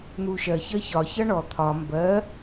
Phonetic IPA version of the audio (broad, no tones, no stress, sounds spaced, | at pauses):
n̪ u ʃ ɜ ç ɜ ç ɒ ç ʌ ɳ ɔ t̪ʰ ɒ m b ɜ